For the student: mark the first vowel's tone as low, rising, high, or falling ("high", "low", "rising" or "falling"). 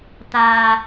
low